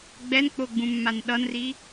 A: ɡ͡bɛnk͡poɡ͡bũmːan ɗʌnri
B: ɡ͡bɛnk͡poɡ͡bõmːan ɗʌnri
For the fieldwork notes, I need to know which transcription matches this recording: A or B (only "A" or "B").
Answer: A